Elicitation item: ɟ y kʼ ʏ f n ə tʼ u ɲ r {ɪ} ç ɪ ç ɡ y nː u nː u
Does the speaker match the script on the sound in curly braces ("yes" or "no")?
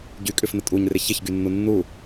yes